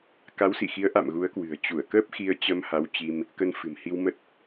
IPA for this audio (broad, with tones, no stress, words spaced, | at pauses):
ka˨˦wsḭ˧˨xi˨˦ə̯ʔa̰˧˨m ɣu˨˦ə̯kwɨ̤˨˩ə̯ t͡ɕu˧˩ə̯kəː˦˥p̚ xi˧ə̯t͡ɕə˧mha˨˦wt͡ɕi˧m | kə˧nfɨ̤˨˩mhi˧wmə˦˥t̚